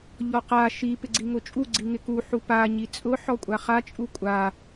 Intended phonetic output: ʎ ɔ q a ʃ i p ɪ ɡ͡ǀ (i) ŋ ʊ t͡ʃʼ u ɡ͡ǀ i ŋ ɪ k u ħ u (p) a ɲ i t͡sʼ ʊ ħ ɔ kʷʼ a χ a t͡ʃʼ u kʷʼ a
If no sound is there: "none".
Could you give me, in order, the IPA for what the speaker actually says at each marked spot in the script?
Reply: i, p

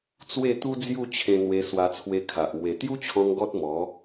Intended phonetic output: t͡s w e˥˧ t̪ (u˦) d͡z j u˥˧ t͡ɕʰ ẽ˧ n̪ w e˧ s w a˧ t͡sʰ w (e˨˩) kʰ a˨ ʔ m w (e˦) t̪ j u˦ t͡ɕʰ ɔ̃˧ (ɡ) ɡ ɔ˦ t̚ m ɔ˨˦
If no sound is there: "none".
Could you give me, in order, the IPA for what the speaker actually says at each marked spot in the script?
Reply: u˦, e˧, e˨˩, ŋ

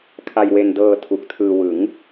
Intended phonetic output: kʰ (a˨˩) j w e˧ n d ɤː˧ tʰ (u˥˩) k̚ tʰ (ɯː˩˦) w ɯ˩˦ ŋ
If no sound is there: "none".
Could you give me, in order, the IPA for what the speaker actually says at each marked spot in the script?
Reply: a˧, u˨˩, ɯː˧

